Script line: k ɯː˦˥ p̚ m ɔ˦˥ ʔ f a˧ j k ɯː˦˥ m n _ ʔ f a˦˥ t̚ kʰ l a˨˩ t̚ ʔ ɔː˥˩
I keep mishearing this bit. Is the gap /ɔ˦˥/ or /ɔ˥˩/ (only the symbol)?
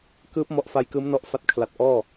ɔ˦˥